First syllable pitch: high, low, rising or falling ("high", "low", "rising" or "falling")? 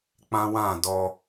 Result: high